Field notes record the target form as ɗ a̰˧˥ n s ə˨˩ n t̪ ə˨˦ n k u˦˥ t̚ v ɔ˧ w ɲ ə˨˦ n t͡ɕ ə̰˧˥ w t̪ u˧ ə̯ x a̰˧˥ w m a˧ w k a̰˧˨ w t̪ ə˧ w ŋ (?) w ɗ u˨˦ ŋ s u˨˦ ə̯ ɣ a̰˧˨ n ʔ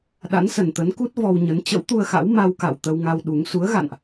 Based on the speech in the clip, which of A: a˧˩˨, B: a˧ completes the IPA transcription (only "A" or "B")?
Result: B